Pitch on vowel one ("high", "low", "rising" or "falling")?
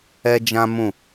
high